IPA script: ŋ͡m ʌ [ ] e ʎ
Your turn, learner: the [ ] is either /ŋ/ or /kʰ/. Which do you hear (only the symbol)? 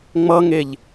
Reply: ŋ